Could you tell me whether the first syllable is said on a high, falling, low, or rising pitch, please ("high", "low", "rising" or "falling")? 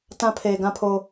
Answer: high